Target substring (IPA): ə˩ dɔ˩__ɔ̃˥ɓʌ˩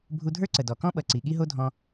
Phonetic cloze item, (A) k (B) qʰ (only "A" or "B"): A